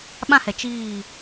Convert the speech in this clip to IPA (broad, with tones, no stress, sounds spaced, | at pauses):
ɓ ã˦ h ɛ˨ t͡ʃ iː˦˨